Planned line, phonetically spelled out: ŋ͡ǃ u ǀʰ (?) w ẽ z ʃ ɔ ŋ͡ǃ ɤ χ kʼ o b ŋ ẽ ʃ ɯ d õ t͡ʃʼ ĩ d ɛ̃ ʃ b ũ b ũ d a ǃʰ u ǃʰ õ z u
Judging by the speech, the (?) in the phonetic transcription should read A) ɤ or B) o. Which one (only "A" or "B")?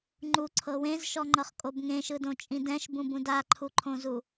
A